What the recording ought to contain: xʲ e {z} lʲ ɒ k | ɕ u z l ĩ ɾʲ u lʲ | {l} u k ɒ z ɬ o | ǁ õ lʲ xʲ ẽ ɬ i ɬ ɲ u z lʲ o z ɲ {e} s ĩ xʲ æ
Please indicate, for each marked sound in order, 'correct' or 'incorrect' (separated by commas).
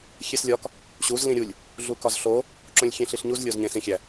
incorrect, incorrect, incorrect